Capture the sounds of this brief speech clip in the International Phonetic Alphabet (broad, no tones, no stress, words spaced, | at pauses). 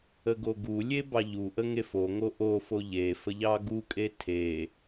əɡoɡulʲe bɑʎuʔə ŋefoŋo ʔofo ʎefə ʎɑɡukʼe tʰe